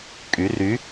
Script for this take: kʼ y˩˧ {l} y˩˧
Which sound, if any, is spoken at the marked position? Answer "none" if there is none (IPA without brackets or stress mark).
r